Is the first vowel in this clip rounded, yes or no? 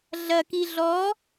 no